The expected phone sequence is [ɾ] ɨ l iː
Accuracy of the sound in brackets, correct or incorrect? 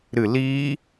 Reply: correct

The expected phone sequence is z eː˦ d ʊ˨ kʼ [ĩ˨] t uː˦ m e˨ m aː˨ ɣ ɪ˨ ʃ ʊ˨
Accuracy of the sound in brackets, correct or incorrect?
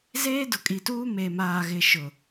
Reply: incorrect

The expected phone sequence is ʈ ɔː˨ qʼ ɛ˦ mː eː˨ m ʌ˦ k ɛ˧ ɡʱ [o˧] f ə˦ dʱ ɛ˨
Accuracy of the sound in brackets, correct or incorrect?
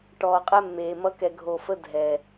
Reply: correct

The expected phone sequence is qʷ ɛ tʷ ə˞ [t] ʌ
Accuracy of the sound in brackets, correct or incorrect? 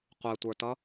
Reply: correct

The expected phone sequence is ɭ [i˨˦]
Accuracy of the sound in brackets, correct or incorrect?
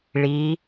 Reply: correct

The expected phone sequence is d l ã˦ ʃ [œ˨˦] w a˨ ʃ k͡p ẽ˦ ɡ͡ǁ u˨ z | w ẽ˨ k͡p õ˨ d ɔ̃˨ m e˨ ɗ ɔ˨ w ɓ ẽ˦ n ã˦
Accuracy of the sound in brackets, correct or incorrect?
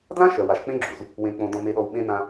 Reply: incorrect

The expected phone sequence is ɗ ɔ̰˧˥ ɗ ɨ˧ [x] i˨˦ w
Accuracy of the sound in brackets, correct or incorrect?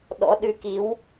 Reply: incorrect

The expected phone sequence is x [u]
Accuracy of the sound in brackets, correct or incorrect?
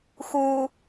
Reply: correct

